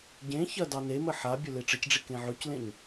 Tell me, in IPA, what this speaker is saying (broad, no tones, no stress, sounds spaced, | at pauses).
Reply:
ɟ ẽ ç ɐ d ɑ n e m ə ħ a bʲ ɵ l e ʈ͡ʂ ə c ɖ͡ʐ i k ẽ ʕ ɵ c l ẽ ɲ